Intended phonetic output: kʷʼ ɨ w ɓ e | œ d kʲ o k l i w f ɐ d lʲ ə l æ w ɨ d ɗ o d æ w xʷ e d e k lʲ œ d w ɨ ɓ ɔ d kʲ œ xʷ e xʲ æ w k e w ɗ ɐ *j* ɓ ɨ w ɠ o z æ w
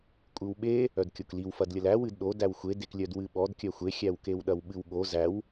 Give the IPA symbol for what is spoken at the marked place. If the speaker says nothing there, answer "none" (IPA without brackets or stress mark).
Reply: w